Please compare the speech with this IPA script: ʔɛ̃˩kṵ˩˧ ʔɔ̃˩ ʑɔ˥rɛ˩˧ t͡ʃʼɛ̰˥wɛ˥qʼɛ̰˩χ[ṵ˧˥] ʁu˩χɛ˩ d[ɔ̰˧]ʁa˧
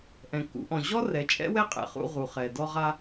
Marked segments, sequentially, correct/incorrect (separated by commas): incorrect, incorrect